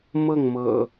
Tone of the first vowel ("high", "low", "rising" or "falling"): falling